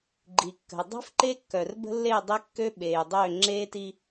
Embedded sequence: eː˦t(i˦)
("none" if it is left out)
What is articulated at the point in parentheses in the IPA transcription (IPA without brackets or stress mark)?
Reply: i˦